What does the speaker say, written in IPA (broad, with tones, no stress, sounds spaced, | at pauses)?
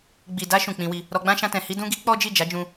ɡ͡b i˨ d a˧ ʃ ũ˨ k͡p ĩ˧ w i˧ | ɾ ɔ˧ ɡ͡b ã˦ ʃ ã˧ t ɛ̃˨ h i˧ d ũ˧ ɡ i˧ k͡p ɔ˦ d͡ʒ i˦˨ d͡ʒ a˨˦ d͡ʒ ũ˧